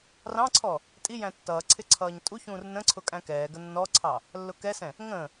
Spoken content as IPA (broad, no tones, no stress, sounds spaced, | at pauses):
r ɑ̃ ǀʰ ɔ | tʼ i j æ̃ tː ʌː ǀʰ ɪ ǀʰ ʌː ɲ tʼ u ç ũː r n ə̃ ǀʰ ʊ kʼ æ̃ k ɛː ɡ ə nː ɔ ǀʰ ɑ | lː ʊ k ɛ s ɛ̃ | ŋ ə̃ː